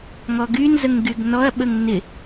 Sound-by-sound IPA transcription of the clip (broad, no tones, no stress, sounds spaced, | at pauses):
ŋ ɔ ɡ y n z ə ŋ ɡ y ɡ n ɔ ɐ̯ ɓ ə ŋ n ɪ